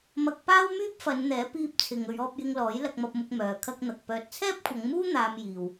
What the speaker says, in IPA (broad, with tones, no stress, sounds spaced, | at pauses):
m ɐ˧ k̚ p aː˥ w m yː˥ p̚ f ɐ˨˧ n n̪ ɛː˨˥ p iː˧ p̚ t͡sʰ ɪ˨ ŋ ɵ˨˧ ɥ ɔː˧ p̚ j ɪ˧ ŋ l ɔː˨˥ j l ɐ˧ k̚ m ɐ˧ p̚ m ʊ˧ k̚ m œː˨ kʰ ɐ˥ k̚ n̪ ɐ˨ k̚ p œː˨ t̚ t͡sʰ ɛː˥ p̚ kʷʰ ɐ˨˧ ŋ m uː˥ n̪ aː˧ m j iː˨ w